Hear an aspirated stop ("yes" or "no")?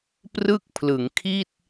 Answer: yes